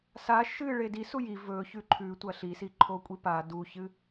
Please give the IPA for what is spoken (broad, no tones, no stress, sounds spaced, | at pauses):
s a ʃ ɨ ɭ e d i s u j i v ɵ ç ʉ ǃʰ ʉ tʷ ɐ ɬ i s i ǃʰ o kʷʼ i p a d u ç ɨ